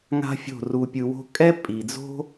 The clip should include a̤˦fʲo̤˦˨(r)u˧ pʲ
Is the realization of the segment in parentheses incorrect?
no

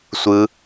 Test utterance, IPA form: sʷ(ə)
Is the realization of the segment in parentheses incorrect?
yes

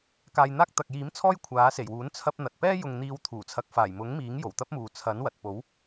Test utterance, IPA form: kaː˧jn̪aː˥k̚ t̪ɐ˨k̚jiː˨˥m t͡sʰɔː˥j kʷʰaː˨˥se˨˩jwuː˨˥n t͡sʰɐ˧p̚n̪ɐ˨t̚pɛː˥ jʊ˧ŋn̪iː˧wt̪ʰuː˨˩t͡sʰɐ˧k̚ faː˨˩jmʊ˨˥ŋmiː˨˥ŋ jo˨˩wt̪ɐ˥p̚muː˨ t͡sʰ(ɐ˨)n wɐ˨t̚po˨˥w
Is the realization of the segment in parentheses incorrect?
yes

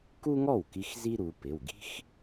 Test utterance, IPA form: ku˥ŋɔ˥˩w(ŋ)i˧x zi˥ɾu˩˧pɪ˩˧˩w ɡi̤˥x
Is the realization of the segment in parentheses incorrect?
yes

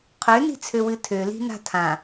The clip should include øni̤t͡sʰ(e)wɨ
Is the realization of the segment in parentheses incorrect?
yes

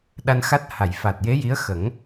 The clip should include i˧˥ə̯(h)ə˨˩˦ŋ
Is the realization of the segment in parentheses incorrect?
yes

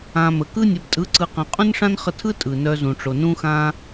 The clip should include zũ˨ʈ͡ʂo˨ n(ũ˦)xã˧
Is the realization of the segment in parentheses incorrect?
yes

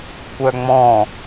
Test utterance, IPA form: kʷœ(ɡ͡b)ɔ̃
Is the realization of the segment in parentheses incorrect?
yes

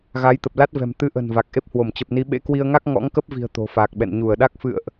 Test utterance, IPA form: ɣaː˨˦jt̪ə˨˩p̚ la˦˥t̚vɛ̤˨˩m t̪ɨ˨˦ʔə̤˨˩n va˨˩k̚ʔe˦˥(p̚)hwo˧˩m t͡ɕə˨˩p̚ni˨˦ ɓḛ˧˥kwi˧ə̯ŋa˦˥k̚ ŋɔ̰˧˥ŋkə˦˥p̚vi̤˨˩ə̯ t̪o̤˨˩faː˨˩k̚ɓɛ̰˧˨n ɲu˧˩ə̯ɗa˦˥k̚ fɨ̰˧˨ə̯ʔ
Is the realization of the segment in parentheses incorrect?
no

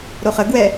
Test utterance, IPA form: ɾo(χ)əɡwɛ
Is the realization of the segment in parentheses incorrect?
no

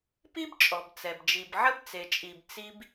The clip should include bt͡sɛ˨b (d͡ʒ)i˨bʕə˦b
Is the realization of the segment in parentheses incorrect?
no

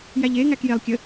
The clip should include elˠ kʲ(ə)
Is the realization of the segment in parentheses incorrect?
no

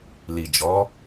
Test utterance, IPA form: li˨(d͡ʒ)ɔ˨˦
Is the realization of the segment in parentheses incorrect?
no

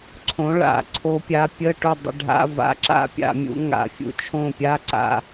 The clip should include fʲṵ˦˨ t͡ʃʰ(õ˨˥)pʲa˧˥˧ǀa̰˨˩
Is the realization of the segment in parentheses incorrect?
yes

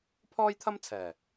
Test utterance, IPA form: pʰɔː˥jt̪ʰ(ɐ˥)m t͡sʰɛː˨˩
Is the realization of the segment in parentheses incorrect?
no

